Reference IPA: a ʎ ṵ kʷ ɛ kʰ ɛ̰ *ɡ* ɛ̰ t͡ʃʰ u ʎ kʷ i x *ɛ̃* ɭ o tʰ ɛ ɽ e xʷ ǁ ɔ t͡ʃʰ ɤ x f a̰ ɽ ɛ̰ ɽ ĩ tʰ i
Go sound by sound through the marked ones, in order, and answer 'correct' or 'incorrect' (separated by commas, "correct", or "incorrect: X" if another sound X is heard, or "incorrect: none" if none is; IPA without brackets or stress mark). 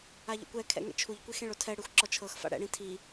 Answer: incorrect: ŋ, incorrect: ẽ